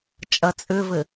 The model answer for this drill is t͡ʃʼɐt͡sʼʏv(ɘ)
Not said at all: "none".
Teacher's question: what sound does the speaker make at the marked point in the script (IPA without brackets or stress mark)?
ɘ